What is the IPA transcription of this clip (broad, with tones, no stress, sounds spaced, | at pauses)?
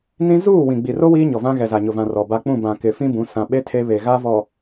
n ĩ˦ z uː˦˨ w ĩ˨ ɡ͡b i˨ r o˦ w iː˦ ɲ ɔ˨ v ã˦ ɣ ɛ˨ z a˨ ɲ ʊ˨ v ã˨ r ɔ˨ b a˦ k͡p ũ˦˨ b ã˨ k ɪ˨ f ĩ˦ b ũ˨˦ s ã˨ ɓ e˦ tʰ e˦ β e˨ ɣ a˦ v ɔ˨